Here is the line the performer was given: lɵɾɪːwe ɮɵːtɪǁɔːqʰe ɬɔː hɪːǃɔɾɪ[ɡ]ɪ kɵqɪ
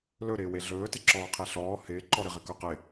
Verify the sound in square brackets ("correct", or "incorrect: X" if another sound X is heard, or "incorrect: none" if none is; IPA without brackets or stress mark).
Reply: incorrect: ʁ